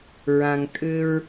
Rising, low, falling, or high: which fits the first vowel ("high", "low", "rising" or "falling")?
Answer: low